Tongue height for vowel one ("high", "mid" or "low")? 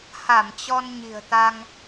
low